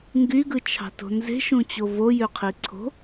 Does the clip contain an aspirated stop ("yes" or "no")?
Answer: yes